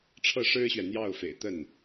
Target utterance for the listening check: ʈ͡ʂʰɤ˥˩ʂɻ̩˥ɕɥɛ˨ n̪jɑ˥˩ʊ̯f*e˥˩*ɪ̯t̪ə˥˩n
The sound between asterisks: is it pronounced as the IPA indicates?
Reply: no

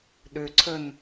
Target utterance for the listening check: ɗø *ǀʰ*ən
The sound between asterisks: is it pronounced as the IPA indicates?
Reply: yes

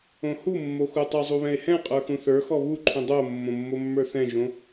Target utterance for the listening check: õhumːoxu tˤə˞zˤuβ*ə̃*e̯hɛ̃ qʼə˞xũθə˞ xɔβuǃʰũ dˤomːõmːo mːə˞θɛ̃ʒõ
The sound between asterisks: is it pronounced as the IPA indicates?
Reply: no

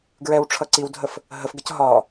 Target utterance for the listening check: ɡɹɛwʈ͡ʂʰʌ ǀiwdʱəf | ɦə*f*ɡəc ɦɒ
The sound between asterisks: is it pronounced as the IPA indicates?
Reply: yes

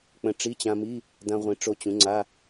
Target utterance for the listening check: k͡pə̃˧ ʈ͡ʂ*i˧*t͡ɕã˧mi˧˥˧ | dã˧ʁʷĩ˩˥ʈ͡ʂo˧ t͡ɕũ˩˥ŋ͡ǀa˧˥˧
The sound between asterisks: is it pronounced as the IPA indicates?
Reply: no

